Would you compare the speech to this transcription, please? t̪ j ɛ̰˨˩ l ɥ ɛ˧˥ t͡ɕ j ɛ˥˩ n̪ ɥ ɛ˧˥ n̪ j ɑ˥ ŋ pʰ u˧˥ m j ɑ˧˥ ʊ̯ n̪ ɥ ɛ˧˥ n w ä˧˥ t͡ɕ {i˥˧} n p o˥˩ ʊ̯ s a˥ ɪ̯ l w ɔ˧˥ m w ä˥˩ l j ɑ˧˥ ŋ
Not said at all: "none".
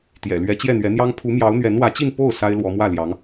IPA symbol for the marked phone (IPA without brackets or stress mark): i˥˧